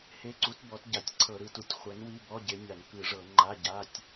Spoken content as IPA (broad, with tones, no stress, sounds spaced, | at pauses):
h e˧˥˧ ǀ u˨˥ t b ɔ˨˥ t ɟ a˧˩˧ tʲ ǀʰ ɤ˧˩˧ ɾ ɯ˨˥ t u˨˥ tʲ χʷ ɛ˨˥ n w i˧˥˧ b ɔ˧˥˧ ɟ e˨˥ nʲ a˧˩˧ n k ɯ˧˩˧ ʐ ɤ˧˩˧ ŋ͡ǃ a˧˥˧ ɟ a˧˥˧ tʲ